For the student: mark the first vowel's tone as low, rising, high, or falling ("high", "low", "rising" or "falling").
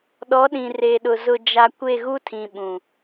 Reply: rising